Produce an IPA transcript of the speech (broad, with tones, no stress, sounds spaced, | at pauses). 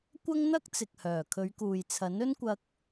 kʷ ɐ˥ ŋ n̪ ɐ˥ k̚ t͡s ɪ˨ k̚ h œː˨˩ kʰ ɵ˨˧ ɥ k uː˨ j t͡sʰ ɐ˨˥ n ɵ˥ n kʷ ɐ˧ k̚